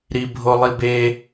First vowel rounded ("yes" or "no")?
no